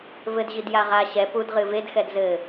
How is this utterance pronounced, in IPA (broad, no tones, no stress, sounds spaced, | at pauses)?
v ɘ d ʑ i d j a ʁ a ɕ ɛ p u d ʁ ɨ v e d x ɛ d z ɘ